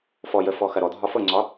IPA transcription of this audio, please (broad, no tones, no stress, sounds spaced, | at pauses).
f ɔ j ə f ɔ x ɐ ɾ ɔ dʱ ɒ f ɤ ŋ͡ǀ ɒ